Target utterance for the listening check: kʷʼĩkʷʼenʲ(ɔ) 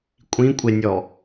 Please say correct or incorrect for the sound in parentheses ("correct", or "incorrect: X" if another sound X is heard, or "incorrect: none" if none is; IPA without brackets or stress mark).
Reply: correct